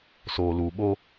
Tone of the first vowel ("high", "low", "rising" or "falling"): low